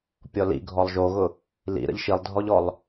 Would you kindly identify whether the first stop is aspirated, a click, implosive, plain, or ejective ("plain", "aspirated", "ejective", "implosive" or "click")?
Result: plain